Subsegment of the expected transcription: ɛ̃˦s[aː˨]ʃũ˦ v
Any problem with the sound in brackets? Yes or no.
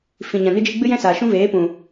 no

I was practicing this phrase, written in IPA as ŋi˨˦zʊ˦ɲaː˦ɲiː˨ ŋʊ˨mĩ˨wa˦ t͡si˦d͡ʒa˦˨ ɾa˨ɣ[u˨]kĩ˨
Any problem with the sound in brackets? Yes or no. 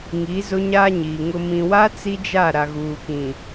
yes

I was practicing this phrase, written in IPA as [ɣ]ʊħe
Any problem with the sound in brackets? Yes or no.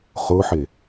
yes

